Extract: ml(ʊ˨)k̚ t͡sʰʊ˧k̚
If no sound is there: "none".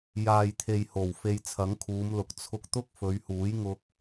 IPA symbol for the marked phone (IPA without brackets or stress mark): ʊ˨